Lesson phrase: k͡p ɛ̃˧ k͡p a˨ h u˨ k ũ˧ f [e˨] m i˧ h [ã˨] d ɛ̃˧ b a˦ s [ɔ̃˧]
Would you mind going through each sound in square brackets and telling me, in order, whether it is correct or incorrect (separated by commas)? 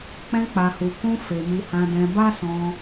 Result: correct, incorrect, correct